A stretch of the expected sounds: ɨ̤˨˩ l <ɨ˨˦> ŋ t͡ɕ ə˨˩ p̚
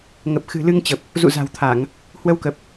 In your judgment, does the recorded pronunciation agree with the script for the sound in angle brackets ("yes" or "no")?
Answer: no